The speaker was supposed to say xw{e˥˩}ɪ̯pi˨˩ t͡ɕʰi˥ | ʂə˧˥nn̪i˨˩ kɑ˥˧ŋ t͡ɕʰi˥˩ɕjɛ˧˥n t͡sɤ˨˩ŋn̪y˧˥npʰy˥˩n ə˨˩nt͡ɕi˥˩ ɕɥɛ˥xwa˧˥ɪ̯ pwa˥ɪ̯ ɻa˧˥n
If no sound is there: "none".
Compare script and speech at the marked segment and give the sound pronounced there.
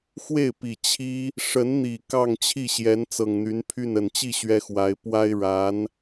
e˥˩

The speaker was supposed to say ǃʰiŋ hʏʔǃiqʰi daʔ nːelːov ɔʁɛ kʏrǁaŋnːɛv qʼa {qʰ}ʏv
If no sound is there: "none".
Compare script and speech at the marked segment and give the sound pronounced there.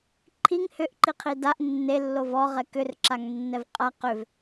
q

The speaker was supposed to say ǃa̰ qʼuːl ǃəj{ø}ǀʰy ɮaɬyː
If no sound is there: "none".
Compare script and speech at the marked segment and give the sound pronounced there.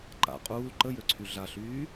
ø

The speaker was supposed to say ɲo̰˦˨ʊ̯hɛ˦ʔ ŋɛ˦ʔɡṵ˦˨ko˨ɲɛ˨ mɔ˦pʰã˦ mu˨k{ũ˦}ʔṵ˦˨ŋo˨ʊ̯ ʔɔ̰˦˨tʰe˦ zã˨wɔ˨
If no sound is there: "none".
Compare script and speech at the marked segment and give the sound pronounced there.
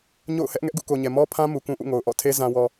ũ˦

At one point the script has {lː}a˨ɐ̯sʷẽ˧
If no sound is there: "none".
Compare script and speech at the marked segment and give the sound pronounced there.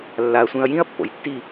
lː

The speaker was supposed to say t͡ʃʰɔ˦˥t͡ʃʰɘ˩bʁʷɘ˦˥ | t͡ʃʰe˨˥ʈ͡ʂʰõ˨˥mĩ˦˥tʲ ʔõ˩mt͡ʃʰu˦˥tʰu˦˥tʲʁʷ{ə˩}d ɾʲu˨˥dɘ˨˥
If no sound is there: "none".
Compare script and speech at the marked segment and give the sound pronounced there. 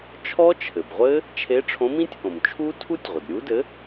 ə˩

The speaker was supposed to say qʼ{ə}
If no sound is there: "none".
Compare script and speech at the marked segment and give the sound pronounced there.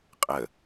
ə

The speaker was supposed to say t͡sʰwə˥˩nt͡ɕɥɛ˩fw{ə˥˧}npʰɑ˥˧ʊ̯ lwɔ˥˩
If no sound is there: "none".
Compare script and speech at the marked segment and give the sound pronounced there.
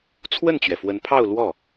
ə˧˥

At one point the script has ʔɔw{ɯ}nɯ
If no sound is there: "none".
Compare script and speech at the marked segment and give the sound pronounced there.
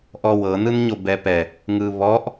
ɤ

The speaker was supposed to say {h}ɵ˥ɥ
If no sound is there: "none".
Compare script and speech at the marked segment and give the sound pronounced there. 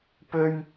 p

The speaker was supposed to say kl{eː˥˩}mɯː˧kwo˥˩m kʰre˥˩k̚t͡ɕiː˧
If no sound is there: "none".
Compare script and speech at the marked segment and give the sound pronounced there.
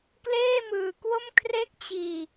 eː˥˩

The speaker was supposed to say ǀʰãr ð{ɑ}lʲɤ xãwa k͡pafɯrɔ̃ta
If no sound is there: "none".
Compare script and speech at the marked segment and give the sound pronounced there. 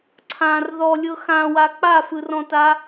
ɔ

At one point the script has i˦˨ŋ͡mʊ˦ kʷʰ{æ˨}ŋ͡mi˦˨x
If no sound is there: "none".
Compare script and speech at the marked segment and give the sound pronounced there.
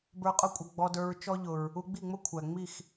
æ˨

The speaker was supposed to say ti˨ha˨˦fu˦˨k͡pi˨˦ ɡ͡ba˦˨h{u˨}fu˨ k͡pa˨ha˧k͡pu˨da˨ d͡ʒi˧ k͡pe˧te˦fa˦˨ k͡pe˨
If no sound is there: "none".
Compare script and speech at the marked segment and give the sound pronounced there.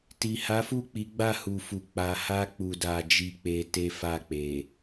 u˨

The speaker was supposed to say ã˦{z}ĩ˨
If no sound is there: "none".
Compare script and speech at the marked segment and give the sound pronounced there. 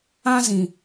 z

